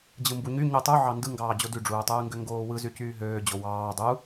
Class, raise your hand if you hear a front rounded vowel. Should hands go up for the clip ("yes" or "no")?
yes